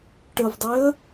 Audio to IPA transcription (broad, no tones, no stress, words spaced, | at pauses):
ʈəvdˤeə̯